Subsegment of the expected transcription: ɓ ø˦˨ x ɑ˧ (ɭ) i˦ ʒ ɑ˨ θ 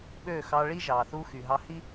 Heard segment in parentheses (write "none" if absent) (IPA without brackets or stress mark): ɭ